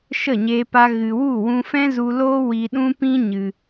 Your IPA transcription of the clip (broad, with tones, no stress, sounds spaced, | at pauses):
ʃ ə˦˨ ɲ eː˧ p a˧ ɣ ɨ˨ w u˦˨ w ũ˧ f ɛ̃˦ z u˧ l oː˦ w i˧ ɗ ũ˦ p ĩ˦ ɲ ɨ˧